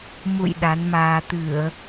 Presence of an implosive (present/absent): present